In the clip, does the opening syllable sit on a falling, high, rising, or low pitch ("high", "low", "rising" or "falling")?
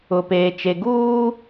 low